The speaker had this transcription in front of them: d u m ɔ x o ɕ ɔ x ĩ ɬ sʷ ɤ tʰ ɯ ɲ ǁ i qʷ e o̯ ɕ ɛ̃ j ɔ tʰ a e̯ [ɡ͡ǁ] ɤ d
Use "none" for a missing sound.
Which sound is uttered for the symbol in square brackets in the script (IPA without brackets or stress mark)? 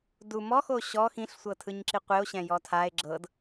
ɡ͡ǁ